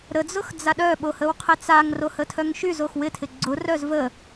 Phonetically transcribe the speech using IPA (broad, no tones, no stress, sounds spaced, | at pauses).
ɾ ə d͡z ʊ x d͡z a ɗ œ ɓ o h ə w qʰ ɪ t͡s a ŋ r o h ə tʰ œ ŋ ʃ y z o x w ɪ tʰ ɪ ɡ͡ǀ ʊ r œ z v ə